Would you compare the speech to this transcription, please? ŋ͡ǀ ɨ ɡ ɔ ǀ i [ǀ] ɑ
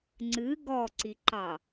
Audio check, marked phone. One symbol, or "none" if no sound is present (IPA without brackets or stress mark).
ǃ